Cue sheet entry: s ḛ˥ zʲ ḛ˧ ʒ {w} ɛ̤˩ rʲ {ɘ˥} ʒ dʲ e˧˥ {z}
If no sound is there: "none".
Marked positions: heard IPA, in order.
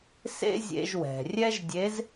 w, ɛ˥, z

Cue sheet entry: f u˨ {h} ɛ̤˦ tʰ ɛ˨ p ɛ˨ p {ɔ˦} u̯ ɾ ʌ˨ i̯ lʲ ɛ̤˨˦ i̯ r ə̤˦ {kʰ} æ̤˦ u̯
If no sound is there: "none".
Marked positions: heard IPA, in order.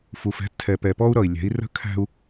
f, ɔ˦, kʰ

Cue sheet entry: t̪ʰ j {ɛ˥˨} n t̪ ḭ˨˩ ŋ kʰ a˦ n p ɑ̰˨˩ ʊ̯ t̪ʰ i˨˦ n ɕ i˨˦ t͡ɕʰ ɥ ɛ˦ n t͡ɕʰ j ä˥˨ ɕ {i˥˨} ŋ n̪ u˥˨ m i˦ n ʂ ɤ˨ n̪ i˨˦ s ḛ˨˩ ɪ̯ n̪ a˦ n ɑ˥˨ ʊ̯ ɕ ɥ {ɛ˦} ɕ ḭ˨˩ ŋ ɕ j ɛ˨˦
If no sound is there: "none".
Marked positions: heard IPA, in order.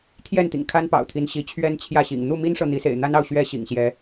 ɛ˥˨, ḭ˨˩, ɛ˦

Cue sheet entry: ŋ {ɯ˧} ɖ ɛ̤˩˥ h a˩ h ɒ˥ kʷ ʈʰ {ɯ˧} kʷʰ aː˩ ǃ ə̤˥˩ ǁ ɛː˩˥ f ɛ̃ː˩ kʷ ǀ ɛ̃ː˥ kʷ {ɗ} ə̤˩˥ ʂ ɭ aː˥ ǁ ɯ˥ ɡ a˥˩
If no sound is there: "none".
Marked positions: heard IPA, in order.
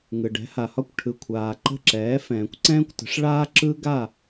ɯ˩, ɯ˩, t

